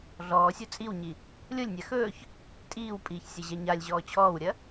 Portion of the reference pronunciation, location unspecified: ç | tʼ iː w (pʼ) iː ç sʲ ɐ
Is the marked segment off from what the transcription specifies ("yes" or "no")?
no